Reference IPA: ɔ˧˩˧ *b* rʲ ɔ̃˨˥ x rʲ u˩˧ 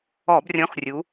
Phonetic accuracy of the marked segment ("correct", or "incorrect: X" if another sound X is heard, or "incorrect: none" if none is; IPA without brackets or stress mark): correct